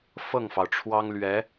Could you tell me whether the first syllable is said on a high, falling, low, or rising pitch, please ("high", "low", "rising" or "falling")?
falling